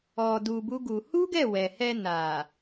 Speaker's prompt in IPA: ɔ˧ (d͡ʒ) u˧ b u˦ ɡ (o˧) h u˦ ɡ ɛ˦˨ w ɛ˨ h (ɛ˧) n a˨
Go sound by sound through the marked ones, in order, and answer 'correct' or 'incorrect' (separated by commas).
incorrect, incorrect, correct